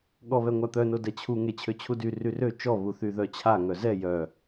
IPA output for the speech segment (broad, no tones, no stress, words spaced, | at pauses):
ɠɔβɛŋʷat̪œ nodɛt͡ɕʰu ŋet͡ɕʰøt͡ɕʰudy ryrø t͡ʃɔ βuθyðœt͡ɕʰa ŋœzɛ jœ